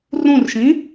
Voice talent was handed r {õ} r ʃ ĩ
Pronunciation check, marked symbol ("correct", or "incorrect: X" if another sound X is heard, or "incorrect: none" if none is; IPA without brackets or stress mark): incorrect: ũ